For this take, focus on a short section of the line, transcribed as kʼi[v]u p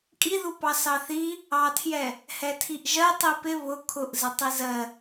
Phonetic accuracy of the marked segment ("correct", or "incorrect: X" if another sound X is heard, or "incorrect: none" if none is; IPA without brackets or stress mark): incorrect: ð